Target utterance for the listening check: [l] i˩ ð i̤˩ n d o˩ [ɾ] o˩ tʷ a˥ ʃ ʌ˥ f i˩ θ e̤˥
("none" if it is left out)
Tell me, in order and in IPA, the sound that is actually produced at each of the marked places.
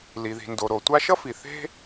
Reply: l, ɾ

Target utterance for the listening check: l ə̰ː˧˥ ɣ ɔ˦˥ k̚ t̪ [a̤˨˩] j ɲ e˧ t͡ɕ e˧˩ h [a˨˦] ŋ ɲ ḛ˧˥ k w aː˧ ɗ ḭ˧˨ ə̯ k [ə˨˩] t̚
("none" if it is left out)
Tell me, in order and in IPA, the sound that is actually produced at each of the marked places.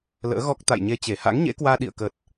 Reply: a̰˧˨, a̰˧˥, ə˨˩

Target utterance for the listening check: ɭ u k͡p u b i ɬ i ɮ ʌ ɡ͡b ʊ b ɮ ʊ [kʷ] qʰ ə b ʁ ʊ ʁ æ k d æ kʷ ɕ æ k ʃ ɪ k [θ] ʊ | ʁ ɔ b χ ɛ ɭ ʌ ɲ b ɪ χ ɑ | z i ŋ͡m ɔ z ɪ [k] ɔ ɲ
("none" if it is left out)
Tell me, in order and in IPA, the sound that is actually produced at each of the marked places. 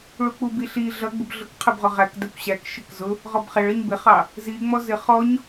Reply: k, z, χ

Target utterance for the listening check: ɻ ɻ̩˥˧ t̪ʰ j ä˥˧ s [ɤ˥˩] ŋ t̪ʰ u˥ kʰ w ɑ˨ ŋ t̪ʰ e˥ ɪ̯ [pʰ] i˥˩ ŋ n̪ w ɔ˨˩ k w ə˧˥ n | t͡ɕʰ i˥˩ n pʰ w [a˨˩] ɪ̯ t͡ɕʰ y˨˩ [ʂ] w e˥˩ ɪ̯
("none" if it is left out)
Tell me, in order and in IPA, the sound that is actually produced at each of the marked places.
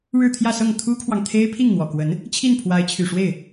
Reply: ɤ˥˩, pʰ, a˧˥, ʂ

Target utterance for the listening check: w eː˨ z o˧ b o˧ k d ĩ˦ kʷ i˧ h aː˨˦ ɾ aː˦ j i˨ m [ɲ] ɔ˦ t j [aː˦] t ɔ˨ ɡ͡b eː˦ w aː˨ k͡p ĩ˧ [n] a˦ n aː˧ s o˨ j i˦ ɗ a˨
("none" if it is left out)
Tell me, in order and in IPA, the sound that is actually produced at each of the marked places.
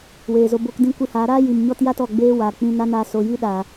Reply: ɲ, a˦, n

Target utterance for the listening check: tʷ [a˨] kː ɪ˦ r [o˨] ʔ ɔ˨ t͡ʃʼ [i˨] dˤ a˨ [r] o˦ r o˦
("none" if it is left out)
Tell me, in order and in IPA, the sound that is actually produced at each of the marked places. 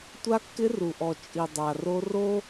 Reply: a˦, u˨, i˨, r

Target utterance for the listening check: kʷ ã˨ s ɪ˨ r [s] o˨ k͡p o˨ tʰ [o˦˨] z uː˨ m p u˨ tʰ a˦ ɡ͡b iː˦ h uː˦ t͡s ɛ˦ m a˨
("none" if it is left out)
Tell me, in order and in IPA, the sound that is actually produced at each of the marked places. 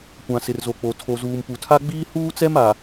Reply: z, o˨

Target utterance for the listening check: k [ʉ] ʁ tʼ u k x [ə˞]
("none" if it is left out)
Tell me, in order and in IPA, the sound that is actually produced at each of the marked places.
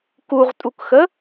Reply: u, ə

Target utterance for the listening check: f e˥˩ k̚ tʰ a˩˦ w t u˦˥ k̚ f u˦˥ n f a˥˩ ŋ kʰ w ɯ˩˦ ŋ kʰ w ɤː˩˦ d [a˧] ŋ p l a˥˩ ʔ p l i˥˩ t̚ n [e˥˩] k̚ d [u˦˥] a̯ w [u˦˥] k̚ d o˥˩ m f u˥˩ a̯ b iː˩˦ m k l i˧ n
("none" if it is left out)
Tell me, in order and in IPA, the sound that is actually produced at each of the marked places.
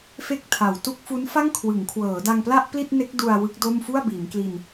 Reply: a˧, e˦˥, u˧, ɯ˦˥

